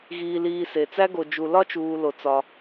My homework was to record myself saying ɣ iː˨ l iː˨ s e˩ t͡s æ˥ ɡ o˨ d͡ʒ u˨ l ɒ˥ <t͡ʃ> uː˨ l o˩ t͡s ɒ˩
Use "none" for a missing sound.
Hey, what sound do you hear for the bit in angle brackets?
t͡ʃ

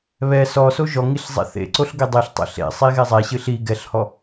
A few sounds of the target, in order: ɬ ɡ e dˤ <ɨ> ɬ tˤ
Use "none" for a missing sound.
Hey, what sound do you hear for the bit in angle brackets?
i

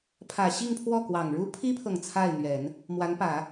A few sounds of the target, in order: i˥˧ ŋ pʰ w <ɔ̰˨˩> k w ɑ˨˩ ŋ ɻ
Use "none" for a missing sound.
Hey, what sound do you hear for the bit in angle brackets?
ɔ˥˩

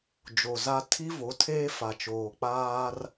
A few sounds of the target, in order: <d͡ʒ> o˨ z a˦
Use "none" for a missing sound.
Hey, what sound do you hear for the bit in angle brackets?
d͡ʒ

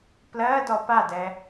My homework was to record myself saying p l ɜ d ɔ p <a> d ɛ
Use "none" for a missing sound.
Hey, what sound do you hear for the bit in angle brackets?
a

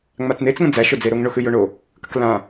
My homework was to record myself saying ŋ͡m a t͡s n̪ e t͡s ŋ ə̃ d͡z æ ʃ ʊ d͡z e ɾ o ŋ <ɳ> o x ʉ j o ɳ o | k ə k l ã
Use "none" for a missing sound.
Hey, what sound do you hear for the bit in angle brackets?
ɳ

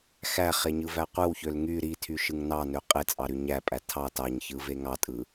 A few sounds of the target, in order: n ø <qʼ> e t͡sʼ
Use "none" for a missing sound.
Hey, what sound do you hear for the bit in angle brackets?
qʼ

